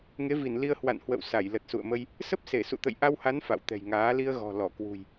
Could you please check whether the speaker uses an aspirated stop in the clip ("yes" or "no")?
no